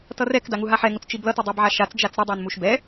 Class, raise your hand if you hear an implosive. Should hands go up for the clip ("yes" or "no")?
no